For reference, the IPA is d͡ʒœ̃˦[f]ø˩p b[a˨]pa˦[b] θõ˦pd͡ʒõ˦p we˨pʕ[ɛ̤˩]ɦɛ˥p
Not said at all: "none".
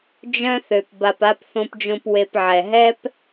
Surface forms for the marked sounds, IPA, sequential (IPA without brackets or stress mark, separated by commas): θ, a˨, p, ɛ˩